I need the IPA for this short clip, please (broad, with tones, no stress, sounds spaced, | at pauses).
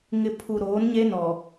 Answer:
ŋ ɪ˨ pʰ u˨ ɾ oː˨˦ n ɲ e˦ n ɔ˨